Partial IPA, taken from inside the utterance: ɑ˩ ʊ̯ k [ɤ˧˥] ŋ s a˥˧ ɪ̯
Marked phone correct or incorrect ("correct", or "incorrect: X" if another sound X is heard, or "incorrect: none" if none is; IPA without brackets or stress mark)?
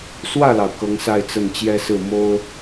correct